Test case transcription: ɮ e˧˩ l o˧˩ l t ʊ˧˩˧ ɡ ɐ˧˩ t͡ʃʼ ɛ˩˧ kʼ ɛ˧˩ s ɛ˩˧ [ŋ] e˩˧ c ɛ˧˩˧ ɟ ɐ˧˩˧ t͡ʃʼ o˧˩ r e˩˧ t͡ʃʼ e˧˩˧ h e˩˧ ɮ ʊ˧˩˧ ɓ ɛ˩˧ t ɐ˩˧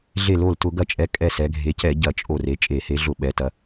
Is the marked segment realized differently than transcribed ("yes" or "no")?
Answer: yes